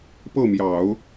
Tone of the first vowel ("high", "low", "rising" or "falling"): falling